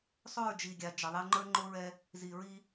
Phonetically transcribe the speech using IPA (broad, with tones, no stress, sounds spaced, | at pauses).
sˤ o˦˨ ɹ d͡ʒ i˨ ɡʲ a˨ d͡ʒ ə˨ ðˤ ɛ˦ ŋ͡ǃ ə˞˦ ŋ͡ǃ o˦ ɹ ɛ˦ | z i˨ ɹ i˦